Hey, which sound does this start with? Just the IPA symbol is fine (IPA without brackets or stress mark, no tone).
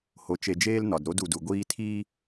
h